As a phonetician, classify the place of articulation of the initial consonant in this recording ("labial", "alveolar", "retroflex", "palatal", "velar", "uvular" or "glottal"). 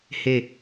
glottal